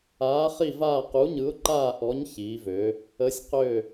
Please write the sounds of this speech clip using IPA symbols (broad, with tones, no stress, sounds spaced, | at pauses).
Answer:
aː˨˥ χ i˦˨ v aː˦˨ q u˨˥ ɲ ɯ˨˥ ʊ̯ ǃ aː˦˨ ʔ ɔ˨˥ ɲ ç iː˩˧ v ø˩˧ | ə˨˥ sʲ q ø˦˨